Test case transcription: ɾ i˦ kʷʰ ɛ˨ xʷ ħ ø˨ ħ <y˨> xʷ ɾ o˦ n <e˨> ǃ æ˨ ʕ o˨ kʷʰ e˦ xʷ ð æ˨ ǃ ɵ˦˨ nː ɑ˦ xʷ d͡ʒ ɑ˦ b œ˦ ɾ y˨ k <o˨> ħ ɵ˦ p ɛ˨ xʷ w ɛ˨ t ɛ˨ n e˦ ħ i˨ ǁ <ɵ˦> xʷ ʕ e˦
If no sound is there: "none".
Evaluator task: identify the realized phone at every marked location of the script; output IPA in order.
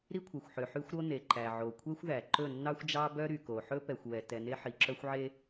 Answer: y˦, e˨, o˨, œ˦

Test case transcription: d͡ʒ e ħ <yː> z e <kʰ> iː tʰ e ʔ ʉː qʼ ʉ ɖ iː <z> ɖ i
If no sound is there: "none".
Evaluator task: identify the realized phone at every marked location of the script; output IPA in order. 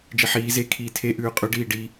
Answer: iː, kʰ, none

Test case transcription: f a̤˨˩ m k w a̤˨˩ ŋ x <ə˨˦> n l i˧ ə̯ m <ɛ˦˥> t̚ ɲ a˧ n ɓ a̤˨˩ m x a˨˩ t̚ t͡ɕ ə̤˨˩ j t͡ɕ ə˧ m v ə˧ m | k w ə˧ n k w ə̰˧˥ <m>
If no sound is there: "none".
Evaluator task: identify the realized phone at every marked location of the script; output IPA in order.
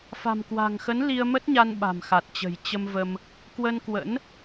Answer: ə˨˦, ə˦˥, n

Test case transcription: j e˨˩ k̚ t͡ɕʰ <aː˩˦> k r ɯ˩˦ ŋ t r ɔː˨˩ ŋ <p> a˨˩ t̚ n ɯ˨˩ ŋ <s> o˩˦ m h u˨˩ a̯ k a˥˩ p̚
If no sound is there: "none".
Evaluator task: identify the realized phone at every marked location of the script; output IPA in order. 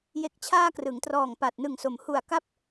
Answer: aː˧, p, s

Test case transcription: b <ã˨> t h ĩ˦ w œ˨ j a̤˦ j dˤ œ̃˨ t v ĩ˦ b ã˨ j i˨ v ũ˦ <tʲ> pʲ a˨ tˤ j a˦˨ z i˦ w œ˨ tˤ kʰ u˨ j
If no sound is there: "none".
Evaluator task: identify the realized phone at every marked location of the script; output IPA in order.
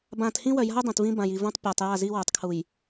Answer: ã˨, tˤ

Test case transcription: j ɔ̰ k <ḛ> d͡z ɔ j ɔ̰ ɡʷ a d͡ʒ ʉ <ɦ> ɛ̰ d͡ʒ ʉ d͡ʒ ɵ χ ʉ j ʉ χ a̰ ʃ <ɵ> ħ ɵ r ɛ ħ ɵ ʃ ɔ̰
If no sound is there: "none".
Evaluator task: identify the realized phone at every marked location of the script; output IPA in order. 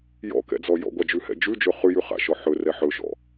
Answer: ɛ̰, h, ɔ

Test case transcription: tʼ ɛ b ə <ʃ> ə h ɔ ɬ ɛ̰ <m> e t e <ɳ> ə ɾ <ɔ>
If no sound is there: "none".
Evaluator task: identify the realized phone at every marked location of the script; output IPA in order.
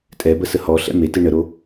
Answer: s, m, ɳ, o

